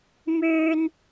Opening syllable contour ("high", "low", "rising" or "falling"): high